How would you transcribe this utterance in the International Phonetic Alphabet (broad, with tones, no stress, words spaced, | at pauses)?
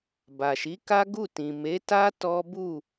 ba˨ʃi˨˦ka˦ɡu˦˨ tĩ˨me˨˦ ta˦ tɔ˦ bu˦˨